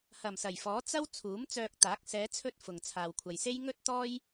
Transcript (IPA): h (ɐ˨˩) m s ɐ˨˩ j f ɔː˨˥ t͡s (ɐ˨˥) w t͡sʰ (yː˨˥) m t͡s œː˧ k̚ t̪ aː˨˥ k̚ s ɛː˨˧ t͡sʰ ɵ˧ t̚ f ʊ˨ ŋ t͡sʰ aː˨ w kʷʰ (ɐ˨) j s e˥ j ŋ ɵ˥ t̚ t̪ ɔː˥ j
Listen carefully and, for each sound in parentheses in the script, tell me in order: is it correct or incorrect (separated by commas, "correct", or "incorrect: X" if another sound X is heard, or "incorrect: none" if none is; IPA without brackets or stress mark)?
correct, incorrect: ɐ˥, incorrect: uː˨˥, correct